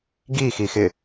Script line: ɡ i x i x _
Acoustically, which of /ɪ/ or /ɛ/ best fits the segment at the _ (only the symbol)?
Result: ɪ